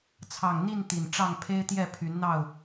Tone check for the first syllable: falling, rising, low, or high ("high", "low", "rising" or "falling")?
low